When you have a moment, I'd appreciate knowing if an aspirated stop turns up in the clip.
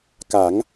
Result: no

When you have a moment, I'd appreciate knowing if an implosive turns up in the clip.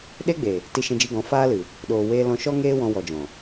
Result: yes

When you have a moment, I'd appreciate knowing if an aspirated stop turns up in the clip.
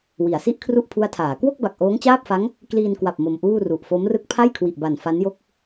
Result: yes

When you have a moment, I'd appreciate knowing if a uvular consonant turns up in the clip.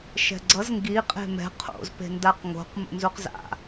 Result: yes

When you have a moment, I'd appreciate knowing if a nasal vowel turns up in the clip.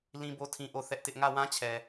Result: yes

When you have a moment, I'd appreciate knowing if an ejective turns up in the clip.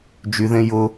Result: no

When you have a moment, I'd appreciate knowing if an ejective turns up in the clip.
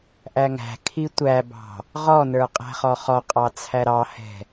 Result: yes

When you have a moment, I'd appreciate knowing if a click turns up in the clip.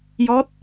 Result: no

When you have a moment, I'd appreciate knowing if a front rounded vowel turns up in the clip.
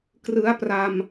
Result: no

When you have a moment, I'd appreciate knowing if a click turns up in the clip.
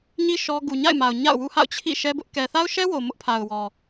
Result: no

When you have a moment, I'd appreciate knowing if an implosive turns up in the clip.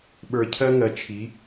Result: yes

